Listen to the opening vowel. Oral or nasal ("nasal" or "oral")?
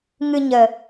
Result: oral